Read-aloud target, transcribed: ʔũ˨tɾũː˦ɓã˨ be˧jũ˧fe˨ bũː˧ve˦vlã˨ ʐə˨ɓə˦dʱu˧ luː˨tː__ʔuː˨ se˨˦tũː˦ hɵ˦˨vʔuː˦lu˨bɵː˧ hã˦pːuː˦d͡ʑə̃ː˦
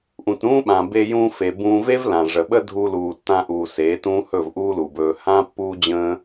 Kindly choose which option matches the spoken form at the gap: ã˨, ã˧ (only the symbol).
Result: ã˧